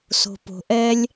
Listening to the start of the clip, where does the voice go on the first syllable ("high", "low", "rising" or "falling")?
low